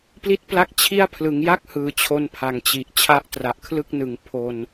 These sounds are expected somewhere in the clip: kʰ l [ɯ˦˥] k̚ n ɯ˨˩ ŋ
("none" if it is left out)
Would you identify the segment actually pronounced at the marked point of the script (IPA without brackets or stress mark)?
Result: ɯ˥˩